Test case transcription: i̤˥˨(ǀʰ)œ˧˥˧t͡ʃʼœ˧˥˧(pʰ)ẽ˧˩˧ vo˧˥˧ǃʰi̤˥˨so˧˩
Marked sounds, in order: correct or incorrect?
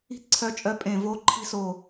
correct, incorrect

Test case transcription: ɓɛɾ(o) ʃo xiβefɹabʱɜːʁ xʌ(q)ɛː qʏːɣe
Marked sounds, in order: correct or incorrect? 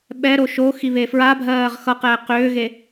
correct, correct

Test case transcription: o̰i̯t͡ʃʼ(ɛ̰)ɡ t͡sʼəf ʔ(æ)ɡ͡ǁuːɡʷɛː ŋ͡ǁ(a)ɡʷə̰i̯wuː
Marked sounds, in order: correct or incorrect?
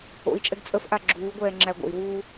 incorrect, incorrect, incorrect

